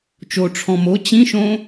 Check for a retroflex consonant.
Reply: present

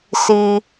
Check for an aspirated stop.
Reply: absent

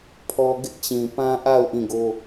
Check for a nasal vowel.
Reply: present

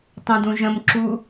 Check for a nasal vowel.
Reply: present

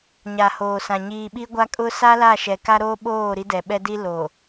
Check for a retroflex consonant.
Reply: absent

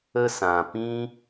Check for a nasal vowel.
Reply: present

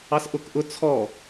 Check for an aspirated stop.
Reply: present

